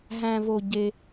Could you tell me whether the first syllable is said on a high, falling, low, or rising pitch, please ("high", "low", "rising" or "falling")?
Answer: high